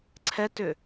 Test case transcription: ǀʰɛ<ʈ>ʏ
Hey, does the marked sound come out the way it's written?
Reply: no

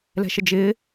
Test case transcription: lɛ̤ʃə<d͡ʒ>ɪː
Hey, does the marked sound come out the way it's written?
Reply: yes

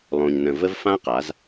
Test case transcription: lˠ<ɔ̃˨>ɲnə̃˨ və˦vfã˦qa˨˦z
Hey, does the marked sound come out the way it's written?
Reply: no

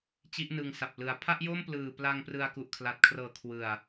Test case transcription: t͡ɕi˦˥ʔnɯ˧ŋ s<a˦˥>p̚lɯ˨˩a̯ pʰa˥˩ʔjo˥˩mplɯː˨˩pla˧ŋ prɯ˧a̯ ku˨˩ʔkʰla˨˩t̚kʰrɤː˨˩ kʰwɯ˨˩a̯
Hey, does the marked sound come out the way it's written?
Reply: no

